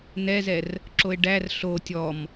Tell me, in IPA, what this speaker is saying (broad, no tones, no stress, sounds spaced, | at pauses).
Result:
n ɛ z ɛ r | ǁ o e̯ ɖ æ r ɬ o tʲ ɔ m